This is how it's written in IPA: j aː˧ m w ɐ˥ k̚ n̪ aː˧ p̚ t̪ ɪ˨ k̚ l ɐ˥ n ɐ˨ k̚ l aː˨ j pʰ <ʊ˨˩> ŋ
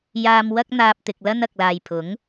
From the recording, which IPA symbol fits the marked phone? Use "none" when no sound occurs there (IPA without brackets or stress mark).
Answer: ʊ˨˥